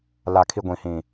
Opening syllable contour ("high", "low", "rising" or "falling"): low